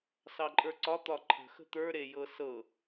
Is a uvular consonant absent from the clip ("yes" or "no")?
yes